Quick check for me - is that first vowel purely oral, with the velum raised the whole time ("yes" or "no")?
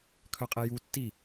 yes